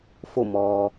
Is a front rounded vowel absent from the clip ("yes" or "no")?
yes